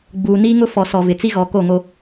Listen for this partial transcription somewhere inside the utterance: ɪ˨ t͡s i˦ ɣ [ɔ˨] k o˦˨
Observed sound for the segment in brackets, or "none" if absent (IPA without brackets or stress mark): ɔ˨˦